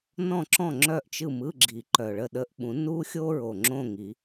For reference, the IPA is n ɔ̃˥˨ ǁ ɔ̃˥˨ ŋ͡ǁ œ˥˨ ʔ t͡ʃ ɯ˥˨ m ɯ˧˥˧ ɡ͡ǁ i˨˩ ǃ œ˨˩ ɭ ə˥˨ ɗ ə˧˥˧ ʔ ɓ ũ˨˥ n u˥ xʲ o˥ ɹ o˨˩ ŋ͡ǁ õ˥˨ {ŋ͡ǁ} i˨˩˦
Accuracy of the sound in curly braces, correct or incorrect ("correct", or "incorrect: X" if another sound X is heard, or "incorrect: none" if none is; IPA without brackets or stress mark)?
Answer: incorrect: ŋ